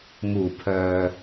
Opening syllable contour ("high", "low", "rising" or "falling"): low